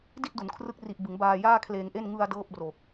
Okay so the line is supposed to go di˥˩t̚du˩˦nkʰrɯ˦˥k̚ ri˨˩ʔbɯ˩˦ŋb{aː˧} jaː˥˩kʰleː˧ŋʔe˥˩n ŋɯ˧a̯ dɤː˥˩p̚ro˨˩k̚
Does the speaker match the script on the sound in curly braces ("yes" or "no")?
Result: yes